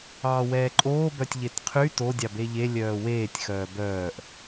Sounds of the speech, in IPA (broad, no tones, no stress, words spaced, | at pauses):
ɑːwɛːǃʼoː bœtʲʎetqʰy to dʲɑbeʎe lʲœːweːtʲ xœːbœːʔ